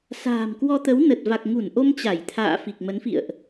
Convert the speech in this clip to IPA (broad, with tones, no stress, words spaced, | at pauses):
sa̤ː˨˩mkwɔ˧t̪ə˨˦wnə˨˩t̚ va˨˩k̚ŋu˧˩nʔo˧m t͡ɕa˧˩jt̪ʰa̰ː˧˨ fi˨˩k̚mə˨˦nfḭ˧˨ə̯ʔ